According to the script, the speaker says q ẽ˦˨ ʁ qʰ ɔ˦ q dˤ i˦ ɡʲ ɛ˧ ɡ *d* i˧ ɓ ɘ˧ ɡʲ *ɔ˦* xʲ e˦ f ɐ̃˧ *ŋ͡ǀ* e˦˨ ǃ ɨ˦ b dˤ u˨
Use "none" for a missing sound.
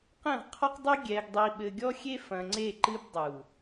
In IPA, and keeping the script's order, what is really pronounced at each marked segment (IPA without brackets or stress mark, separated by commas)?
dˤ, ɔ˦, ŋ͡ǀ